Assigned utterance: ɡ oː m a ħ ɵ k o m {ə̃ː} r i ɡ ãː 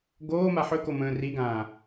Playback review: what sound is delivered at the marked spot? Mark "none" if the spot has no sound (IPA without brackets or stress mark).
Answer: ə̃ː